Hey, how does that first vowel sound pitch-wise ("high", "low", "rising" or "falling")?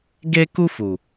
high